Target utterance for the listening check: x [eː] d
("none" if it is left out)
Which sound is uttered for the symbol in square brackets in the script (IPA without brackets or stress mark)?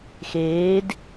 eː